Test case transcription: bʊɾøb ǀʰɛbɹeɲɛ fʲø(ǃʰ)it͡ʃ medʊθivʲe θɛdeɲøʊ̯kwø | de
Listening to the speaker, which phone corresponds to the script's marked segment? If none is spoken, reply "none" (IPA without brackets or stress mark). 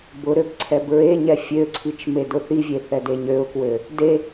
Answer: ǀʰ